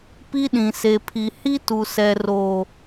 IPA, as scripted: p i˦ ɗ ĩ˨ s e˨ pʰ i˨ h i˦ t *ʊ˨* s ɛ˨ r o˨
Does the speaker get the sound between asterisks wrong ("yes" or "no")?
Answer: yes